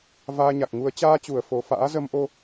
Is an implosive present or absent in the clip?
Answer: absent